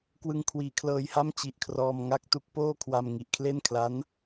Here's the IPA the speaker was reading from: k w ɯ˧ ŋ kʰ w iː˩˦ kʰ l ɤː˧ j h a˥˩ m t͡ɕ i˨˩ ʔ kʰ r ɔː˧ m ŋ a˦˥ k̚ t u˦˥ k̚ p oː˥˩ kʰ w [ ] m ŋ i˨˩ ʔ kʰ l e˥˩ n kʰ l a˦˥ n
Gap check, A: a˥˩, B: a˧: B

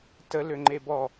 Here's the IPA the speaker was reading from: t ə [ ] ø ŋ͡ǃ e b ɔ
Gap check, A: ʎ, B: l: B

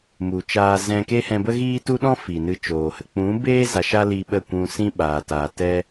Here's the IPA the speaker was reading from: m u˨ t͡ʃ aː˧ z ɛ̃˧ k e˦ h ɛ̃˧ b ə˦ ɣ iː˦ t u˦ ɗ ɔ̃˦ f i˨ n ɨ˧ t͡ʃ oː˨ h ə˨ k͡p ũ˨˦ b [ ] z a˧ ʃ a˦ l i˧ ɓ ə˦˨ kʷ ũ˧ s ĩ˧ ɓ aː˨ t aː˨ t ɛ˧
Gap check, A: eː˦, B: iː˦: A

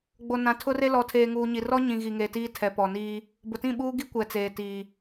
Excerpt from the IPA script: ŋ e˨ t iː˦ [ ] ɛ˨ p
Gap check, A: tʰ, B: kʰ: A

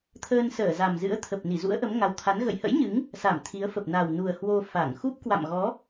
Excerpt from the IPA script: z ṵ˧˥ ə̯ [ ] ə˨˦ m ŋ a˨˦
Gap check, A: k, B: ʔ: B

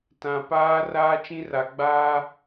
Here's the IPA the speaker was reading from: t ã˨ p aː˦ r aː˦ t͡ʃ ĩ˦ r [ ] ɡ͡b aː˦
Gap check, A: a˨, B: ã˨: A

